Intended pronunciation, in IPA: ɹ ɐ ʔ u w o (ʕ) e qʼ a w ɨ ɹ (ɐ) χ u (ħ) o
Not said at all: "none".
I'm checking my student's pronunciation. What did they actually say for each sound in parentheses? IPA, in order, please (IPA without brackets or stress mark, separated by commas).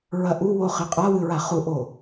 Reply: χ, a, ʔ